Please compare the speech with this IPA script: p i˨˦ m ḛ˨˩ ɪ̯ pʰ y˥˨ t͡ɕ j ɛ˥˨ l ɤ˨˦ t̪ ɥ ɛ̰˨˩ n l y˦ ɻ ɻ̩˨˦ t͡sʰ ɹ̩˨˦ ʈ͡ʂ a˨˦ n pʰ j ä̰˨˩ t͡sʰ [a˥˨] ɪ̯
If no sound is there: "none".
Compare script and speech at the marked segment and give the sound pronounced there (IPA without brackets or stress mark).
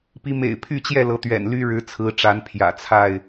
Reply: a˥˨